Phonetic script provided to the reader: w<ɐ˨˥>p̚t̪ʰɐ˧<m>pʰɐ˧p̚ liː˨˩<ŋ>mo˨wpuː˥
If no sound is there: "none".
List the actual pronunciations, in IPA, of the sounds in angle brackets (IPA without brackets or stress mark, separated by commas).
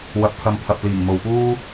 ɐ˧, m, ŋ